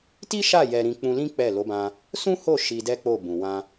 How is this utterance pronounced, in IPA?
ti˦ʃa˦˨ jɛ˧ɾĩ˧ k͡pũ˧lĩ˦ k͡pɛ˦˨ lo˨˦bã˧ | sũ˦ho˦˨ ʃi˧dɛ˦k͡po˦˨ bũ˨wã˧

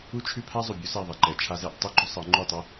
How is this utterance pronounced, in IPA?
u˦t͡ʃʰʉ˦pʰa˦ zˤʉ˨bʲu˦sɛ˦˨ðˤɛ˨ ǃɛ˨t͡ʃʰa˦zɛ˦ʔ tˤu˦ɡ͡ǃʉ˦ sˤɤ˨˦ŋ͡ǃʉ˦˨tˤɛ˦

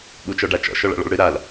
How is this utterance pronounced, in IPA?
ɓut͡ʃɔɖat͡ʃɔ̰ ʃɔɭa̰ɭɔ̰ɭɽɨ ɾal

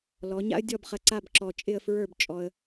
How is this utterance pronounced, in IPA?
lɔ˩˧ ɲa̰˥ə̯ dʲɔ˥˧bχɐ˧ ǀa˥˧bǁɔ˧ t͡ʃʼɪ˥˧ə̯fɹə˞˥˧bt͡ʃʼɔ˧ə̯

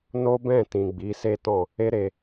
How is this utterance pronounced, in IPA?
no˦ bɛ̃˦˨tĩ˨ ɡ͡bi˨˦se˦tɔ̃˦˨ | e˦ɾe˧

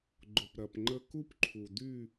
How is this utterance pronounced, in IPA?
ɡ͡ǃʊ˩p ɾɐ˩pŋ͡ǃə˦ ku˦pǃʰu˩dy˦˨

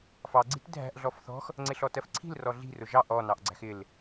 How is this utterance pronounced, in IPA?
fɑɡ͡ǀi̤t dʱæ̤ʔ ɮɔfθɔ̤x | ŋ͡ǀɪɬɔtɜfǀʰi̤l rɔɮi̤rʊ ʒɑʔ ɔnɑʔ ɡ͡ǀæ̤xɪl

